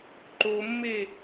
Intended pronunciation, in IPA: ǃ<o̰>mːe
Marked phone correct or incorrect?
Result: incorrect